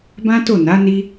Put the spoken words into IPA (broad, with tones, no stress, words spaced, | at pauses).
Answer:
bã˦to˦˨na˨˦ ni˦